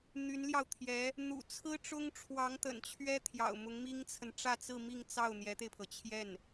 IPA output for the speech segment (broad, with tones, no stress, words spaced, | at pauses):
n̪y˧˥nljɑ˧ʊ̯t̪ʰjɛ˧˥ | n̪ṵ˨˩ t͡sʰɹ̩˥ʈ͡ʂʊ˥ŋʈ͡ʂʰwɑ˧˥ŋ t̪ə̰˨˩nt͡ɕʰɥɛ˥ t̪ʰjɑ̰˨˩ʊ̯mʊ˧˥ŋmi˥ŋt͡sʰə˨n ʈ͡ʂä˥˧t͡sɹ̩˥˧mi˥˧ŋt͡sɑ˥˩ʊ̯ n̪jɛ˧˥t̪e˧ɪ̯pʰɤ˩ t͡ɕʰjɛ˥˩n